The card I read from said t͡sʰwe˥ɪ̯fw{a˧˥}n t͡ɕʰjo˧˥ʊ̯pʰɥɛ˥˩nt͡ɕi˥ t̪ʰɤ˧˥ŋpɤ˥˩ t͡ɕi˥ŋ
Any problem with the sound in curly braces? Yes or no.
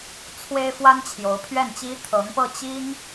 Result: yes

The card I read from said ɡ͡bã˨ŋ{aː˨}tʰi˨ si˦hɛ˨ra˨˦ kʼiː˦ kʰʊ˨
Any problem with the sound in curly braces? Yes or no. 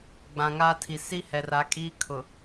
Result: yes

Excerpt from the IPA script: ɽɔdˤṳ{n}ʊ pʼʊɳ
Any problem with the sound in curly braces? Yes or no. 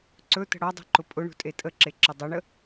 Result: yes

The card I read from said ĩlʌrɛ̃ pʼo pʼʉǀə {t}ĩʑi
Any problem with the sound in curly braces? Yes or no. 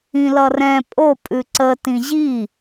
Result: no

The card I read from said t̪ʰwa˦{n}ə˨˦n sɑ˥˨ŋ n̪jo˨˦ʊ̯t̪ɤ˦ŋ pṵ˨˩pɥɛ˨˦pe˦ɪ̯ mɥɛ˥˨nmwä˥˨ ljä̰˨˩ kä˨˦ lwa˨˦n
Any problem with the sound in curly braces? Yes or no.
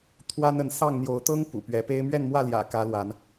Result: no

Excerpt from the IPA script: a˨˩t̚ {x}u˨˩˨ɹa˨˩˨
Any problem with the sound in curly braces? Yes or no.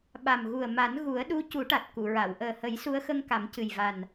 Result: yes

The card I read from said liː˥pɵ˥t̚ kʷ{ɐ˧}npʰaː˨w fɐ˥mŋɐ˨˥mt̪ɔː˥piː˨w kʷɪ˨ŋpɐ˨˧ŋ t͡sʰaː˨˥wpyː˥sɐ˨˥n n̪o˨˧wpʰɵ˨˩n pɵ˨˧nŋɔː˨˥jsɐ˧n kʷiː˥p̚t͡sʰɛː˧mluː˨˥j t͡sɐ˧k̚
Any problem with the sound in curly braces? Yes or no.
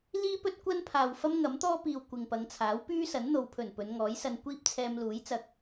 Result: yes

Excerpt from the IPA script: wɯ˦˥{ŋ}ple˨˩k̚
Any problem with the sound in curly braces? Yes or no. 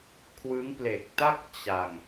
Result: no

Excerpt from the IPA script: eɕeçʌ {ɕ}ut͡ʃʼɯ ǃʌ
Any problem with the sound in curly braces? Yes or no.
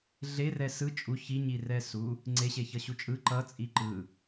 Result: no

